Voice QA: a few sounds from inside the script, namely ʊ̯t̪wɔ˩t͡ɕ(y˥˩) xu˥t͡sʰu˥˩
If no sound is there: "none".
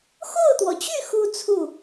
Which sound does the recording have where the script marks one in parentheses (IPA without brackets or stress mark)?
y˥˩